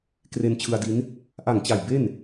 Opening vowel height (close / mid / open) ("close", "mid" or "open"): mid